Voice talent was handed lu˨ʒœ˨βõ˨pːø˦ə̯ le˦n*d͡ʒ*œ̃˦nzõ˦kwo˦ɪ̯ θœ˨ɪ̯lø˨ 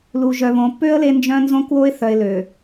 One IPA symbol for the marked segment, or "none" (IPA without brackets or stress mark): d͡ʒ